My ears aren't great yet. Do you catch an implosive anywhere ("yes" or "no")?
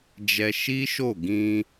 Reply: no